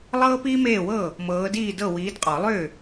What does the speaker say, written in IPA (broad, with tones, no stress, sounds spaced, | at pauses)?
lˠ ɤː˥ p iː˥ m eː˥˩ w ɤ˥˩ | m ɤː˨˦ d iː˥˩ d ɤ˥˩ w iː˨˦ d qʼ ɔ˨˩˦ lˠ ʏː˥˩